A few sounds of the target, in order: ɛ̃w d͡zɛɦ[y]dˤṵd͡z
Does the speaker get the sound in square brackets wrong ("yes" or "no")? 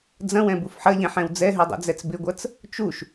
no